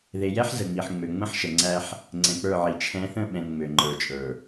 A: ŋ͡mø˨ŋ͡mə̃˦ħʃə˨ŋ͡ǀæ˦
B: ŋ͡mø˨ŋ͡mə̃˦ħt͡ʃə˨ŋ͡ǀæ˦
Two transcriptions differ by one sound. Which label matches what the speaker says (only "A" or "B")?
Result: A